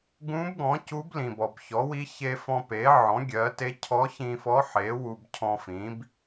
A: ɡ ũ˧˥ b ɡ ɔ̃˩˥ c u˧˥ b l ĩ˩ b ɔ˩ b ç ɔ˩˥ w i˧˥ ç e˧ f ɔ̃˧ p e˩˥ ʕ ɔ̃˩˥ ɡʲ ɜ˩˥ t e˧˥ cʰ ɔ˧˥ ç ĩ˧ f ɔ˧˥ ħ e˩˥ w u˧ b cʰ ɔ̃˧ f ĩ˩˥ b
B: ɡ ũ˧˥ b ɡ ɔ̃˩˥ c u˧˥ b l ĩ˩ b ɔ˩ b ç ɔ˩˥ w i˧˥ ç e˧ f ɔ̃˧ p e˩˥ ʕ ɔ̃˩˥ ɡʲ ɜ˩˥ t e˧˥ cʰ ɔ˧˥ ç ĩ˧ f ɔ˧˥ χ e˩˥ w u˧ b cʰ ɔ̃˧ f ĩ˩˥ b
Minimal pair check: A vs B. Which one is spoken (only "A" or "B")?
A